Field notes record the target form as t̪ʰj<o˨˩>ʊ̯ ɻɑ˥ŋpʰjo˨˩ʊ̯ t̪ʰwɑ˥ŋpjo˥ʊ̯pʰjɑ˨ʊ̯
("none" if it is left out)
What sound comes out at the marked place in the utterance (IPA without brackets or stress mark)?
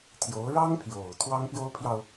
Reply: o˧˥